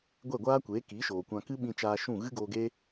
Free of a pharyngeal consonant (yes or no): yes